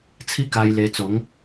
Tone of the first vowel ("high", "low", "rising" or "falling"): high